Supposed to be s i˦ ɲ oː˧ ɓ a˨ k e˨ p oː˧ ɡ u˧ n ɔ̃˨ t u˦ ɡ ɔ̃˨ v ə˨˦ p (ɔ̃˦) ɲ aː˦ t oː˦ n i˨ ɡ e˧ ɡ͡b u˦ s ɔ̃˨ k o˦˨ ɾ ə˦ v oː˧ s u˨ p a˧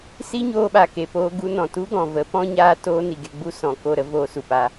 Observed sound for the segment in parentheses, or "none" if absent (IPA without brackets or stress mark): ɔ̃˦